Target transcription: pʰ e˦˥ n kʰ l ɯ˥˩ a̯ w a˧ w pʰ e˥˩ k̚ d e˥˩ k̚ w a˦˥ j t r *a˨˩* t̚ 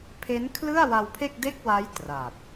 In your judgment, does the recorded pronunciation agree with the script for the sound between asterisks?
yes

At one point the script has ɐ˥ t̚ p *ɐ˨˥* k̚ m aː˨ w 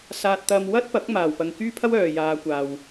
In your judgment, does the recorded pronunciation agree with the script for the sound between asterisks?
yes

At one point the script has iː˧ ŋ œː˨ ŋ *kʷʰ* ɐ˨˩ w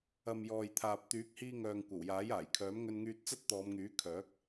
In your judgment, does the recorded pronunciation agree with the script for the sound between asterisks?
no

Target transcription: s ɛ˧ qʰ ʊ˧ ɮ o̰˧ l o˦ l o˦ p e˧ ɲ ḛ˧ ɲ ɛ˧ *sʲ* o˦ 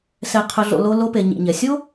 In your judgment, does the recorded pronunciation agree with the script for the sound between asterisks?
yes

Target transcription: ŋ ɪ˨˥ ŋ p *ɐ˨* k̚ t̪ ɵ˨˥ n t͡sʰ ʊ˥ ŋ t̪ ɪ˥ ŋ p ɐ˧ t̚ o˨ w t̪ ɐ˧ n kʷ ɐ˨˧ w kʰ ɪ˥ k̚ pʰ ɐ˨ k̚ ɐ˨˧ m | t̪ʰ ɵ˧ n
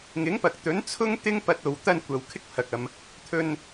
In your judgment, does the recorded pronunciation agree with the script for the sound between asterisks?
yes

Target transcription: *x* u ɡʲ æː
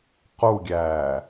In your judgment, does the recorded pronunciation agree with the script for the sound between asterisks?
no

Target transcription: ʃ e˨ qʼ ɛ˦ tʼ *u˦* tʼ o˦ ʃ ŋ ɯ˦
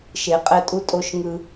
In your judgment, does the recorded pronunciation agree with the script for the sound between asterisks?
yes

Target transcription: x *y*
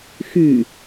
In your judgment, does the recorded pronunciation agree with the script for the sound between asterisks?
yes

